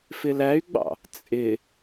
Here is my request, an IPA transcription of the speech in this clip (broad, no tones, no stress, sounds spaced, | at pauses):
f ɪ l æ y̯ ɡ͡b ɑ̰ | t͡sʼ ɪ